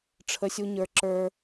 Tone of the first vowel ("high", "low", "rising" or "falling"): high